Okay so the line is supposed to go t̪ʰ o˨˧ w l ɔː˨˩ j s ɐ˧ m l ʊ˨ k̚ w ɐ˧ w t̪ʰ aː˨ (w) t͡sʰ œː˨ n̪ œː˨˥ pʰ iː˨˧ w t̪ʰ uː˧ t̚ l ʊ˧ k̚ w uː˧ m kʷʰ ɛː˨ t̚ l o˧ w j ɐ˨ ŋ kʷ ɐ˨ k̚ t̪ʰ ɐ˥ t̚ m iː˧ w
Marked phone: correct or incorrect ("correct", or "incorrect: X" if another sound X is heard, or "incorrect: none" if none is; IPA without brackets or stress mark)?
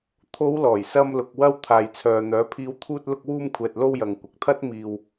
incorrect: j